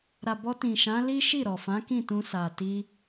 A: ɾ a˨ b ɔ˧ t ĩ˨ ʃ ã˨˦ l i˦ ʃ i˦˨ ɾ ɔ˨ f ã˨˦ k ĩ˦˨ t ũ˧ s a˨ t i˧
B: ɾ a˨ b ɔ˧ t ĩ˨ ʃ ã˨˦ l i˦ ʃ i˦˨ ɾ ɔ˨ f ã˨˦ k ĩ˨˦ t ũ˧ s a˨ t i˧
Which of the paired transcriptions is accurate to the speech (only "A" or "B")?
A